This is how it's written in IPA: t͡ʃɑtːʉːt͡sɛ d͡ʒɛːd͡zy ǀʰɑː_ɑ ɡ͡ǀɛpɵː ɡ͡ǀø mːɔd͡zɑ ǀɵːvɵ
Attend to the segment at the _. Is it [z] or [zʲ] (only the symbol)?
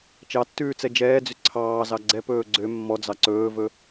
z